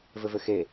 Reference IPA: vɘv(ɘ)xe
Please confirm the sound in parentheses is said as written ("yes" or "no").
yes